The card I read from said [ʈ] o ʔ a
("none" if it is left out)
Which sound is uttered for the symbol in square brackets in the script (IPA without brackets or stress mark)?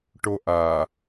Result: ʈ